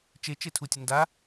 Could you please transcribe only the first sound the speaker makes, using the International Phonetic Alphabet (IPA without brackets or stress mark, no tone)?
t͡ʃ